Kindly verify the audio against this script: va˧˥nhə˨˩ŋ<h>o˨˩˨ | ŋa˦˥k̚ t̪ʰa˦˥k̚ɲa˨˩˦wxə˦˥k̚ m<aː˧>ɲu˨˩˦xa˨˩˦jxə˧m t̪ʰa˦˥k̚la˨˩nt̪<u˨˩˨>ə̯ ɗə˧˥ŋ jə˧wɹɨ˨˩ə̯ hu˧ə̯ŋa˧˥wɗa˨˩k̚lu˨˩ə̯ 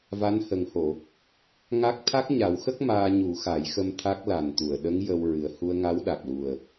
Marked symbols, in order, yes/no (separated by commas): yes, yes, yes